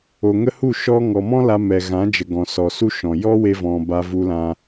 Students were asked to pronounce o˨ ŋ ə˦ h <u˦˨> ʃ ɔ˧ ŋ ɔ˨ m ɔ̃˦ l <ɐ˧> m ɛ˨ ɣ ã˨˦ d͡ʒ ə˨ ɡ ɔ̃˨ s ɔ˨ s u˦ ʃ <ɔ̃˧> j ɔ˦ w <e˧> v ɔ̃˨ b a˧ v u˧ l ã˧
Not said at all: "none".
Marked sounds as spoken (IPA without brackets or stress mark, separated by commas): u˦˨, a˧, ɔ̃˨, e˧